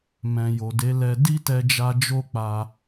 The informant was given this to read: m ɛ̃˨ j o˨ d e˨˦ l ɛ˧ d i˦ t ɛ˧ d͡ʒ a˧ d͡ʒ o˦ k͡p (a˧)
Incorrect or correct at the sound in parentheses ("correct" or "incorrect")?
correct